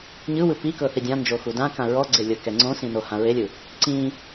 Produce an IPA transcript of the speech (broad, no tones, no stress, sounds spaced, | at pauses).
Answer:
ɲ ɯ w ɯ p i k ɤ θ i dʲ ã n d͡ʒ o x u d ã k ã ɹ ɔ ɡ͡ǀ e lʲ ɤ k ɛ ŋ͡ǀ õ s ĩ n o h ã ɹ e lʲ ɯ | ǀ ĩ